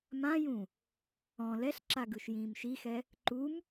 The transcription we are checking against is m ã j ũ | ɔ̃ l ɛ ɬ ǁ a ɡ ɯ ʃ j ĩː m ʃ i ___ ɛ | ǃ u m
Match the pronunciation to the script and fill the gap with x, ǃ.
x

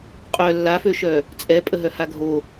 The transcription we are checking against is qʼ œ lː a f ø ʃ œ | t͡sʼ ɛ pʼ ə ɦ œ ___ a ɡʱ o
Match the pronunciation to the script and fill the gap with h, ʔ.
h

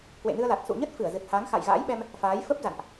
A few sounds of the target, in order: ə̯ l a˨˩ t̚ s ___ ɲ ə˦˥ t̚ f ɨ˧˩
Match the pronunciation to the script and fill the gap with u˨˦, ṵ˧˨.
ṵ˧˨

